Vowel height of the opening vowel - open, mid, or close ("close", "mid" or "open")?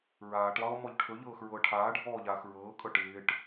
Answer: open